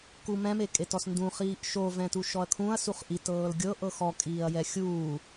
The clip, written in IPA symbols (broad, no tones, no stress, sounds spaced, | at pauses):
k u m ɛ̃ m e kʼ e t ɔ s n d ũ χ iː ʔ ʃ o v ɛ̃ t u ʃ ɔ ɐ̯ kʰ ũ ɐ̯ s u χ ʔ i t ɤː l ɡʲ ɤ ʔ ɤ x ɔ kʼ iː ɐ̯ j ɛ xʲ uː